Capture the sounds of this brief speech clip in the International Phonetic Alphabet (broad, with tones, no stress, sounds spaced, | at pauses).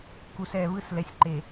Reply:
k u˨ s ɛ˨ β ɯ˦ s l ɛ˨ sʲ ǃ e˨